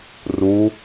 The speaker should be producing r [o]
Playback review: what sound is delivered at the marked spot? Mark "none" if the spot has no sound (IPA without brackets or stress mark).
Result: u